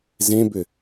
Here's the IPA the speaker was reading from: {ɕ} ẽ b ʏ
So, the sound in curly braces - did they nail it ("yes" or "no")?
no